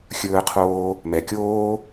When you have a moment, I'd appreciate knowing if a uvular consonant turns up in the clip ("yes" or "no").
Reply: yes